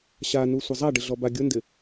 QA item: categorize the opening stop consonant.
plain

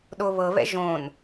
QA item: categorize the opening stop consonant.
implosive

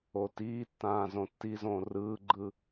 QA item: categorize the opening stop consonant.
plain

